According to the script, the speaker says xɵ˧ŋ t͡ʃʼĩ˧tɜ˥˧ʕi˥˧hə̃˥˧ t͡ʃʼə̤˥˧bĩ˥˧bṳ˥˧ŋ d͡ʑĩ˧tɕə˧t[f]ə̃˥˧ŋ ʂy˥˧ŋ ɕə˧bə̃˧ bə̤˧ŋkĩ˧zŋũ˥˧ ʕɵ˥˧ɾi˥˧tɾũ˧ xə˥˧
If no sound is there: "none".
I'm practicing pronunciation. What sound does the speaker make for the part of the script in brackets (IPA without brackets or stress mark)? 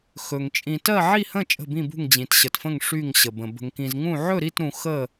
f